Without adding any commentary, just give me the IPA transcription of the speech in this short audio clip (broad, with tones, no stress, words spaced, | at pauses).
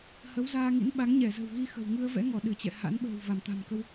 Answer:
hə˨˦wzaː˧ŋḭ˧˥n ɓa˨˦ŋ ɲɛ˧˩zə̤˨˩wɣi˧ xə̤˨˩w ŋɨ˧ə̯vɛ̰˧˥ŋɔ˧˩ ɗɨ˧˩t͡ɕɛ̰˧˨ha̰˧˥n ɓə̤ː˨˩w va˧˩mt̪a̤˨˩mkə˧w